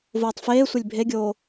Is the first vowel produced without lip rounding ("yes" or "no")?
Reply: no